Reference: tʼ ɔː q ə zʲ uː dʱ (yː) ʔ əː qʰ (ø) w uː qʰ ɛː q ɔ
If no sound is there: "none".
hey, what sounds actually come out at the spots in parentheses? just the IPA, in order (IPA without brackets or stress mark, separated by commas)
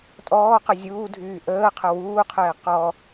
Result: yː, ə